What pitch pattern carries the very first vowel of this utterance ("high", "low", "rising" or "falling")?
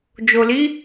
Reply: low